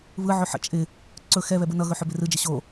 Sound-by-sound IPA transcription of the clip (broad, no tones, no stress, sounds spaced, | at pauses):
β ɯ ʕ ɵ ħ ə̰ t͡ʃʼ ɪ | ǀ ɵ x ɛ β ɛ b ɯ n ʌ ɣ ɵ ħ ɵ b ɪ r ɯ d͡ʒ ɪ ɕ o